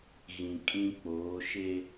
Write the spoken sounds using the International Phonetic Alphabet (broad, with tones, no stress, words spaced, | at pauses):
ɣĩ˨kʼĩ˦k͡poː˨˦ ʃe˦